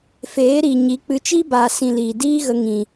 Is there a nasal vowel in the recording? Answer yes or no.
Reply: yes